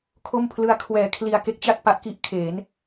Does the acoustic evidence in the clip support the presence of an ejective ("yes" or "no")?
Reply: no